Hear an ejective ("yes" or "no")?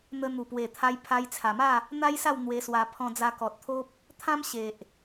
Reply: no